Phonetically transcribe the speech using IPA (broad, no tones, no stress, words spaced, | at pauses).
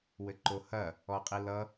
wɘǃohɐ | ɔqʼilʌ